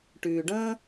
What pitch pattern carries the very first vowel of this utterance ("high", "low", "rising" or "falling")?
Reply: low